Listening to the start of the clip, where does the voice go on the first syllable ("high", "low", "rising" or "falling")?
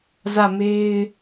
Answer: falling